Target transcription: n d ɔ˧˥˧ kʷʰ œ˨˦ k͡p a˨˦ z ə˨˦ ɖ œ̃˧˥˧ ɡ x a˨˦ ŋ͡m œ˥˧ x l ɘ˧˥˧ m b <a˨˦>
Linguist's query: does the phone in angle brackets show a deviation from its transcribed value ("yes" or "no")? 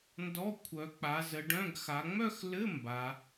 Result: no